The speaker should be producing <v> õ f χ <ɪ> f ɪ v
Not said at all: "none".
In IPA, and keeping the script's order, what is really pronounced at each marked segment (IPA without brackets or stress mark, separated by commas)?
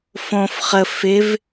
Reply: f, ə